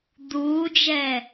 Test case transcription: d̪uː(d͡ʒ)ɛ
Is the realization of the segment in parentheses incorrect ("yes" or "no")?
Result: no